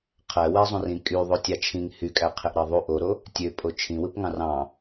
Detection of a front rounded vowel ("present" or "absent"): present